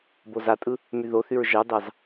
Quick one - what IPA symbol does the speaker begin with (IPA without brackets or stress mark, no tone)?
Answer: b